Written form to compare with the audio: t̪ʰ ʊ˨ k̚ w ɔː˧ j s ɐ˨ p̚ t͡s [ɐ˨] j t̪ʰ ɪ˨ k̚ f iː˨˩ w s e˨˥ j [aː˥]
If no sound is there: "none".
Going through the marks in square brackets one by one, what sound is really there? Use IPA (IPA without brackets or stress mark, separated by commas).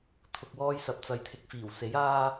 ɐ˨, aː˥